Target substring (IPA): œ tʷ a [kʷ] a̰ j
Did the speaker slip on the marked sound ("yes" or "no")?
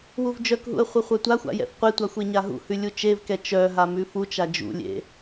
yes